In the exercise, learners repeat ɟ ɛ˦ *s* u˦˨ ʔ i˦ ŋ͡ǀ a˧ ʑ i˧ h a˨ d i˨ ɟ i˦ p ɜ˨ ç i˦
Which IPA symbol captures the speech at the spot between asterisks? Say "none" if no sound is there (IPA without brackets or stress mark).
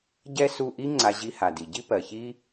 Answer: s